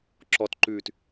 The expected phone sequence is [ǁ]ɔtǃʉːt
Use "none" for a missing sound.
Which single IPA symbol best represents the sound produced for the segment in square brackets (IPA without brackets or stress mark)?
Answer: ǁ